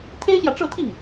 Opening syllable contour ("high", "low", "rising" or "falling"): high